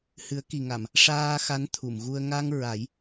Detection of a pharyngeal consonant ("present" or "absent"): absent